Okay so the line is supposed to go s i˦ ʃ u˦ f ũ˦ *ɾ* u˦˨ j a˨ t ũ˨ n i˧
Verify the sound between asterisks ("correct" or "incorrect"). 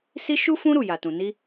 correct